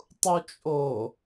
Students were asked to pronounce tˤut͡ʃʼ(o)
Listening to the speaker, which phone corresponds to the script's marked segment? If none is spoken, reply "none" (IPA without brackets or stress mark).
o